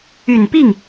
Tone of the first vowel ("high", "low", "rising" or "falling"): low